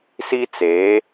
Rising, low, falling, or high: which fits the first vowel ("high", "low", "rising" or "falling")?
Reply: high